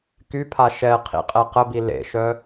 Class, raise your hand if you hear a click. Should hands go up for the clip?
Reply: no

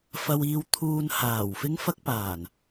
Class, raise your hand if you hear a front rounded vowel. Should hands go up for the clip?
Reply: no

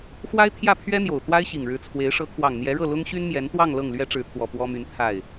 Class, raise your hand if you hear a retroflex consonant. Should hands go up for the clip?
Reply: yes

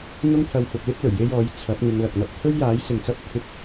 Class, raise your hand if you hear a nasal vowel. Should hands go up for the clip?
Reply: no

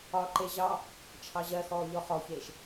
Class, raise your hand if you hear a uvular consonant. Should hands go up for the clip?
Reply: yes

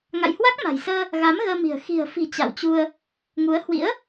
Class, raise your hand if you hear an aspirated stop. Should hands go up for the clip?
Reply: no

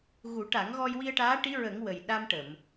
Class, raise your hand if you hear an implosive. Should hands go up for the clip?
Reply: yes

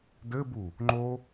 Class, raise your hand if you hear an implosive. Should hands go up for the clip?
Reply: no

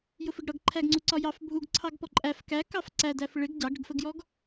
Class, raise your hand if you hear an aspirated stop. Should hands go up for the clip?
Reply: yes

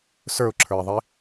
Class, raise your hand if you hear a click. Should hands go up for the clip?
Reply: yes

